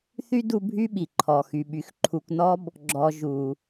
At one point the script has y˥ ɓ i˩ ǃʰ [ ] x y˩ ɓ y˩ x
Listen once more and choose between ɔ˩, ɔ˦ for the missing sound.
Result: ɔ˩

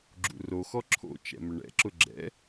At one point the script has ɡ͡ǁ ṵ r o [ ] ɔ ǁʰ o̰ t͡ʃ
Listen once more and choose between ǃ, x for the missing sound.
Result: x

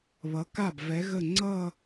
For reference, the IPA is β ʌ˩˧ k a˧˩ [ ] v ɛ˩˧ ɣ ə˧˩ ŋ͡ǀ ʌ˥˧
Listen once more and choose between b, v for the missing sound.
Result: b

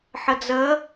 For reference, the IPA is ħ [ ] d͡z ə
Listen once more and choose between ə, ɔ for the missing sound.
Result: ə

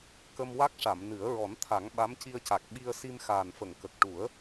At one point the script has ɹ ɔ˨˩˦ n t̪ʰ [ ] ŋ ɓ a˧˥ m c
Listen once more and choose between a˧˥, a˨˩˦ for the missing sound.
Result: a˨˩˦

